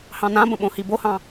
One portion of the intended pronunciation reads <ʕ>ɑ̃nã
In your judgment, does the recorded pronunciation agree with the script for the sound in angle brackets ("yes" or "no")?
no